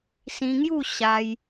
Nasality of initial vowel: nasal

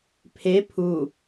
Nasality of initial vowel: oral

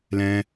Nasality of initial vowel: nasal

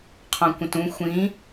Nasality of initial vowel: nasal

